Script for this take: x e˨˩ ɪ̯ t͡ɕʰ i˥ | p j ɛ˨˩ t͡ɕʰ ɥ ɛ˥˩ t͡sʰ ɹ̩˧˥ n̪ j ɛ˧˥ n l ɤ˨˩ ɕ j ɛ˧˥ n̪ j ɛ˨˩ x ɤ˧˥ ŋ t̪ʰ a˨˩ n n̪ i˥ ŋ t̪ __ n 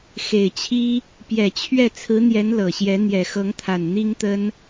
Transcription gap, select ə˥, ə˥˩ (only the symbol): ə˥